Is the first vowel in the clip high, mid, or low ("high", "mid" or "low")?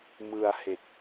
high